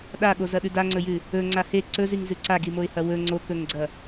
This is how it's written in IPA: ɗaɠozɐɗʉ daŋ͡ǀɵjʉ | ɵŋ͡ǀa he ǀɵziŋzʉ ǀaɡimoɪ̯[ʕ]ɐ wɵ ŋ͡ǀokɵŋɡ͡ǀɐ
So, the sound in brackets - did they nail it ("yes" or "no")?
no